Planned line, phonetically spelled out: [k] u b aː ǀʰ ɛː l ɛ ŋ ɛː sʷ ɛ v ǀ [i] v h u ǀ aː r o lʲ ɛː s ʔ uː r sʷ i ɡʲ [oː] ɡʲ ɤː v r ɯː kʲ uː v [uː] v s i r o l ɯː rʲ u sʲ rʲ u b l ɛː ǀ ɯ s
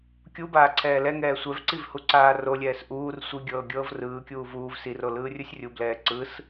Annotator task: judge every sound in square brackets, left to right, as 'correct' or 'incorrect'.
incorrect: kʲ, correct, incorrect: ɤː, correct

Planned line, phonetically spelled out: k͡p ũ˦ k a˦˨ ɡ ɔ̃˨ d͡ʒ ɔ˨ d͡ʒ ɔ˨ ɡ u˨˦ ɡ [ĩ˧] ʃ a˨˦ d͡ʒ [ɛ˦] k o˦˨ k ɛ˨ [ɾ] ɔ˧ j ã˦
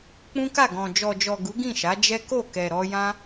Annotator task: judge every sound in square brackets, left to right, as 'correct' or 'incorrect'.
incorrect: ĩ˦˨, correct, correct

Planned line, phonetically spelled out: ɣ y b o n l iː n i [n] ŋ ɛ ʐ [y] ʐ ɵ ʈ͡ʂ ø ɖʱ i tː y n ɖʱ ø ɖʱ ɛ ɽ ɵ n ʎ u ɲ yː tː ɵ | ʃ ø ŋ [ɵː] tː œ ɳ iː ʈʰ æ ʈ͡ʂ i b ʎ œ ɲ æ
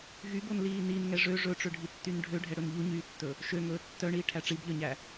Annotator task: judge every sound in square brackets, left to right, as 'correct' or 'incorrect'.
correct, incorrect: ø, correct

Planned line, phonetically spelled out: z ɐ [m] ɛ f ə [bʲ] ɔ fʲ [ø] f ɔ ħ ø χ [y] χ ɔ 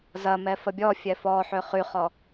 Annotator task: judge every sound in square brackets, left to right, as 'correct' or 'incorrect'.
correct, correct, incorrect: ɛ, correct

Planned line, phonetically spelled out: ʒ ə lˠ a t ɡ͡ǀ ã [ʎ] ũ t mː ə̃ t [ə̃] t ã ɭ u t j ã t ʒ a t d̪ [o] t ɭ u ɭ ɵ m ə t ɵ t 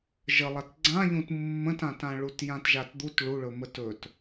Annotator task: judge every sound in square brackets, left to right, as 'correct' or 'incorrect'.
correct, incorrect: ã, incorrect: u

